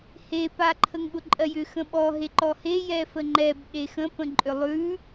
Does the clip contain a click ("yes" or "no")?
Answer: yes